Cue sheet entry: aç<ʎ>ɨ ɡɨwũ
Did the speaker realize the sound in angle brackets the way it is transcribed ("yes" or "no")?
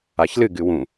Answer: no